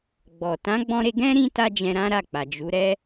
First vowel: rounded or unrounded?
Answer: rounded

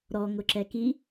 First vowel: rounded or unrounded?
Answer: rounded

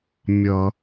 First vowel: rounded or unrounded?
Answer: unrounded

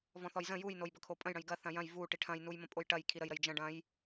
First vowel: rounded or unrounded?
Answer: rounded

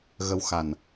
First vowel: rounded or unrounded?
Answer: unrounded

